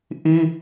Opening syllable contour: high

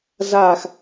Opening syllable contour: falling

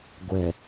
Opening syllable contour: low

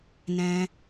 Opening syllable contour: high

